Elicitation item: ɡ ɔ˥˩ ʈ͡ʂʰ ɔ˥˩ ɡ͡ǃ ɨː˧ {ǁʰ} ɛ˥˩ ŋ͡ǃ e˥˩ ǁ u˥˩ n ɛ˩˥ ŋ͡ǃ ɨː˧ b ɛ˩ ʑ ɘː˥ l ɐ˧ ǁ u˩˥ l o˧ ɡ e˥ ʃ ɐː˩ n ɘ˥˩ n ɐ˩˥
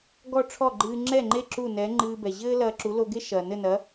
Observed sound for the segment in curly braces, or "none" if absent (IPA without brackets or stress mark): ŋ͡ǁ